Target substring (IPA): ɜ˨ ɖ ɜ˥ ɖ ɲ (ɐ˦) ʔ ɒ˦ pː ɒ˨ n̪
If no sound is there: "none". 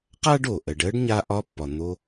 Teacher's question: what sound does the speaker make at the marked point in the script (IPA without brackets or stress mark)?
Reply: a˦